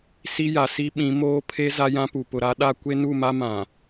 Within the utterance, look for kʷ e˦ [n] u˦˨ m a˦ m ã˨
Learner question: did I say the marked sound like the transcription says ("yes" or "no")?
yes